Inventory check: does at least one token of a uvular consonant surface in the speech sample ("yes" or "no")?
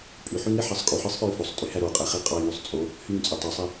yes